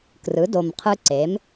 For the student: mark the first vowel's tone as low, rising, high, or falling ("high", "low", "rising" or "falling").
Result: rising